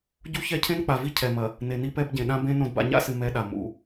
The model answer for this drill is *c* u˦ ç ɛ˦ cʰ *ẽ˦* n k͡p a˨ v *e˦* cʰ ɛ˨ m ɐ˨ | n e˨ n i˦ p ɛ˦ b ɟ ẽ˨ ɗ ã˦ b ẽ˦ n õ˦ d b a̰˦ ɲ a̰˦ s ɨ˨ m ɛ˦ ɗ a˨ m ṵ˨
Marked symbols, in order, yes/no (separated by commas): no, yes, no